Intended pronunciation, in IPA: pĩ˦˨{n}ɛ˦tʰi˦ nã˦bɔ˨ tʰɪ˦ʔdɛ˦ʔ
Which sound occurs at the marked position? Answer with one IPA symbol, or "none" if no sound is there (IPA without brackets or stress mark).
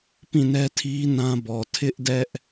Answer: n